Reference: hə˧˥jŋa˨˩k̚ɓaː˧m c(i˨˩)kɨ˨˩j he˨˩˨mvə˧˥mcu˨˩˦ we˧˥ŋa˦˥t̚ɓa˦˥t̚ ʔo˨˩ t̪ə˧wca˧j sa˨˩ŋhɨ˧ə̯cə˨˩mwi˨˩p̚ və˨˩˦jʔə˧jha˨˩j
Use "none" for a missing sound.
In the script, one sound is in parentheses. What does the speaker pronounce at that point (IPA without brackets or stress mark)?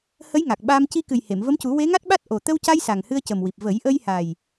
i˧